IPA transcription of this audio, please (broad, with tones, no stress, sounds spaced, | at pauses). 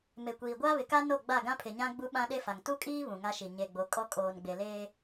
m e˨ kʷ iː˨ ɡʷ aː˦ β ɪ˨ k a˦ n o˦˨ ɡ͡b a˦˨ ɡ ã˦ pʰ ɪ˨ ɲ ã˦ ɡ͡b u˦ ɓ ã˦ ɗ e˦ f a˨ ŋ t u˦ kʼ iː˦ β ũ˨ ŋ a˦ ʃ i˨ ɲ e˨ ɡ͡b o˨ kʼ ɔ˦ kʼ oː˨ n ɡ͡b e˨ l eː˦